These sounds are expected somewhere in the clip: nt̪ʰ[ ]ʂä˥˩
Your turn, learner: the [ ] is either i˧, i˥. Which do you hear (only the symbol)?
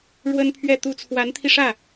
i˧